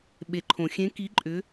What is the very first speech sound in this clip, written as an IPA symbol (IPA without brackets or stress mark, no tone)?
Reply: ɓ